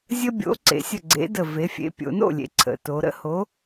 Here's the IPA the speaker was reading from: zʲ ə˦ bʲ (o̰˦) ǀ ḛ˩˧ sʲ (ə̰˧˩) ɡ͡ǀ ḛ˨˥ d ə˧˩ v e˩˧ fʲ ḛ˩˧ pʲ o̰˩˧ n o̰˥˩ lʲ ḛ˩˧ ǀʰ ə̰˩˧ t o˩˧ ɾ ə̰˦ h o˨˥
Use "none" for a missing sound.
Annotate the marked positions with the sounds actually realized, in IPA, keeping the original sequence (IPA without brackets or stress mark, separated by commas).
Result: o̰˨˥, ə˧˩